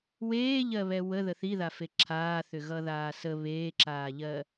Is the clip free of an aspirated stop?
no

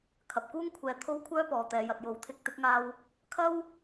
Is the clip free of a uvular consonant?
yes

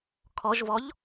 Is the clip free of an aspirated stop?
no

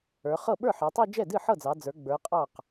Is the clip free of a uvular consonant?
no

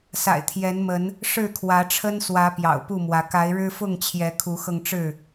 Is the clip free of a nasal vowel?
yes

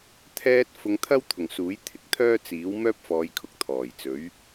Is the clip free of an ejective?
yes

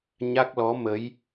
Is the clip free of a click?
yes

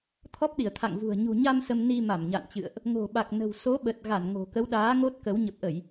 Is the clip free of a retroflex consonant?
yes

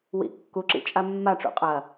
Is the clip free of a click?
no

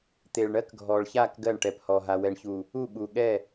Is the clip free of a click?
yes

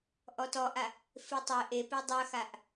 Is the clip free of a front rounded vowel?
no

